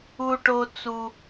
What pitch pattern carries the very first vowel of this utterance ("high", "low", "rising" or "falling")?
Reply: high